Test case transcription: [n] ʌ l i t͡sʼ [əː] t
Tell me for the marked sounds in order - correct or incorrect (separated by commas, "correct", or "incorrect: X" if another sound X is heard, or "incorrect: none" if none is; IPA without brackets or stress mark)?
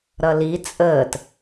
incorrect: ɾ, correct